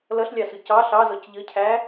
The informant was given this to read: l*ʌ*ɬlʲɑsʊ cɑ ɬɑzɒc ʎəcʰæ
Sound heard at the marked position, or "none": ʌ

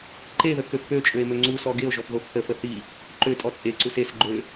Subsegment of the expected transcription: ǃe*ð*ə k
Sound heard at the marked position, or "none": ð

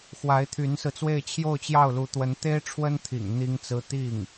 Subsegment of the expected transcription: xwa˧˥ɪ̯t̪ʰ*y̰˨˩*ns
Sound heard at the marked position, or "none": y˧˥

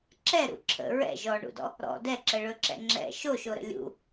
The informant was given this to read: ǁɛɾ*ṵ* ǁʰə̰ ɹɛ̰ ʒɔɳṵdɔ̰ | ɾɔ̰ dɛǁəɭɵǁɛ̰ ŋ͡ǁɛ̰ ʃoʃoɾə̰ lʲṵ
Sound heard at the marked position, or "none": ṵ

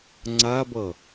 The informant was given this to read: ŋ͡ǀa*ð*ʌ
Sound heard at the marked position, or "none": b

